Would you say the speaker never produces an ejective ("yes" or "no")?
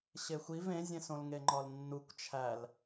yes